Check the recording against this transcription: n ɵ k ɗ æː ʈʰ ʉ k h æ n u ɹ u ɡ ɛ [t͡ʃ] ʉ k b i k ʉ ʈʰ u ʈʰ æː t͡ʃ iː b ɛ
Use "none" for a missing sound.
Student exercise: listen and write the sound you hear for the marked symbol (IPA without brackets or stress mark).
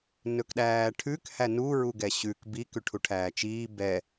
ɕ